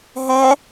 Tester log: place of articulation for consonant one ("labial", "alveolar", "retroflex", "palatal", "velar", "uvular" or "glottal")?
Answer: glottal